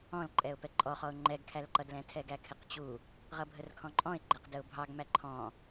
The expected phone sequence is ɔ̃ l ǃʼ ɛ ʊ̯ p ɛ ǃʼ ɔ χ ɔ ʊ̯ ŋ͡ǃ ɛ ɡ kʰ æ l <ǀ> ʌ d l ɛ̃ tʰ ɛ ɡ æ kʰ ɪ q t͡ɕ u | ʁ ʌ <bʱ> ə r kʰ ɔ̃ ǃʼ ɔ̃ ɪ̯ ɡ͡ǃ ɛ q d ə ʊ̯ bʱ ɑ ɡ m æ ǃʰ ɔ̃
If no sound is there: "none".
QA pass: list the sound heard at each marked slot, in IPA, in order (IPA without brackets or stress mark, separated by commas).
ǃ, bʱ